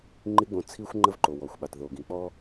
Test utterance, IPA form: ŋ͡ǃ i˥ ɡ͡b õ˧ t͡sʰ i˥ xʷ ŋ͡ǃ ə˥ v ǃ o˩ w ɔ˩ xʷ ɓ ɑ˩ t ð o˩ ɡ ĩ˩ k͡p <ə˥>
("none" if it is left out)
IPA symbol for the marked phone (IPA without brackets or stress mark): ɔ˥